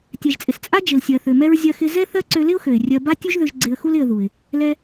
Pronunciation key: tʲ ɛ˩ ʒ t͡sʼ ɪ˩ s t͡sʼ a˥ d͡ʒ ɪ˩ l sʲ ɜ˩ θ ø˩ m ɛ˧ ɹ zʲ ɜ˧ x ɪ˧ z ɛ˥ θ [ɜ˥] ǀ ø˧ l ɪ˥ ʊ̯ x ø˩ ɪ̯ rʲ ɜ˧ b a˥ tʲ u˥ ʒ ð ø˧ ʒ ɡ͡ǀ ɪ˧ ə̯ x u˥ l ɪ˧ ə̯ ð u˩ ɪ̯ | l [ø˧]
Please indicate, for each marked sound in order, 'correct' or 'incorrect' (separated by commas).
correct, incorrect